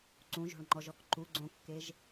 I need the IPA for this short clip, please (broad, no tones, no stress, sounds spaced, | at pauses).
ǀ ũ ʒ o̤ ɭ ŋ͡ǃ ɔ ʒ ɔ k ǃ u ɡ͡ǀ õ kː e ʒ